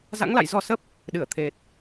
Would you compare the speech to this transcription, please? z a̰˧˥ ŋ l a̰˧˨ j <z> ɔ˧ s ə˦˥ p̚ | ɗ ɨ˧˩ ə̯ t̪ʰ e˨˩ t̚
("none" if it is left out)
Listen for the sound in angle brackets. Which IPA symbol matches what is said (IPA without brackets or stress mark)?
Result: z